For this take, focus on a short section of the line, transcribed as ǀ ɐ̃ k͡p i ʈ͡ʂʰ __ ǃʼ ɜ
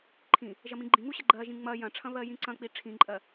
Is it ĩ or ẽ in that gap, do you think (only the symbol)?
ĩ